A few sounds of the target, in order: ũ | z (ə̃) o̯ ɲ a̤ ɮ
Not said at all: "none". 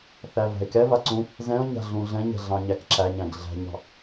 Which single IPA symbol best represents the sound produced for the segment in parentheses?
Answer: ɛ̃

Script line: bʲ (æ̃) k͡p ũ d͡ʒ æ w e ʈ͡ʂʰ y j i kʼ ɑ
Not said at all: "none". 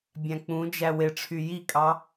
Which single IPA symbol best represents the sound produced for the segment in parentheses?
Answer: æ̃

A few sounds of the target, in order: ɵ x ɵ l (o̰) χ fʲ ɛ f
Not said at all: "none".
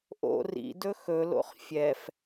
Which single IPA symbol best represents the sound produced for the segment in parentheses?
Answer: o̰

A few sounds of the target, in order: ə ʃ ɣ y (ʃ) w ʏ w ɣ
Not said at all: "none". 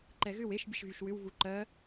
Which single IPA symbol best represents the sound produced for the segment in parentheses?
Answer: ʃ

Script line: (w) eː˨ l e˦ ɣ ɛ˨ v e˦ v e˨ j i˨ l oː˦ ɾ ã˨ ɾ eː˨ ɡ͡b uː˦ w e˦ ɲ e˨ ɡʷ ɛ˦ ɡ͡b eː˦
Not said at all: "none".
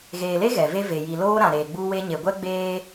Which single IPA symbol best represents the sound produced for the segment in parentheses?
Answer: ɣ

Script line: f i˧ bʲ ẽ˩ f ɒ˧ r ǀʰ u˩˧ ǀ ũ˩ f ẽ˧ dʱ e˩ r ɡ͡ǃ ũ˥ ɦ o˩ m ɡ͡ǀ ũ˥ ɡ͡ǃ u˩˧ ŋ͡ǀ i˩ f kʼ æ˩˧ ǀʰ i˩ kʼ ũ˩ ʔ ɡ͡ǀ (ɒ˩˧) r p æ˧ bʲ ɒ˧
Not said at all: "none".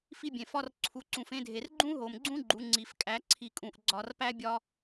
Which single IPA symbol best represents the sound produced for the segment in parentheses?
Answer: ɒ˩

